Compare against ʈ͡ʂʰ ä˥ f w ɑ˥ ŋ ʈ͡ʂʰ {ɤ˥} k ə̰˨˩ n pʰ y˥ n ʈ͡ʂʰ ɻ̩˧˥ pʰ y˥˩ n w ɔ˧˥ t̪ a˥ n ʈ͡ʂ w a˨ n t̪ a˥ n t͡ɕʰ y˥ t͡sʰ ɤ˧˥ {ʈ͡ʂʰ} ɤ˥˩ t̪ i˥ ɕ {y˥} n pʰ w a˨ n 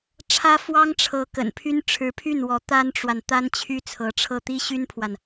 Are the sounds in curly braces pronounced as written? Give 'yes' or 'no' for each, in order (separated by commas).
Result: no, yes, yes